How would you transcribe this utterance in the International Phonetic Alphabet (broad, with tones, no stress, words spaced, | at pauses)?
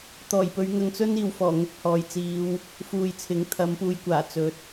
t̪ɔː˨˩jpɵ˨˧ɥ ŋɐ˨˧ŋ t͡sɵ˥niː˨wfɔː˨˩ ŋʊ˧k̚ hɔː˨jt͡siː˨˧w | fuː˨jt͡sʰɪ˨˥ŋ t̪ʰɐ˨˧mpuː˨˧jkʷaː˨˩ t͡sɵ˨˥t̚